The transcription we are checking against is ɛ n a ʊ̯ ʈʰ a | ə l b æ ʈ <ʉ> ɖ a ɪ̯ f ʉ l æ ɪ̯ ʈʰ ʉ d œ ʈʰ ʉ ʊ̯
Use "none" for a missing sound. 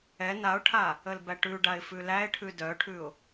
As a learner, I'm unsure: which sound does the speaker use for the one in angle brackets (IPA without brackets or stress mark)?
ʉ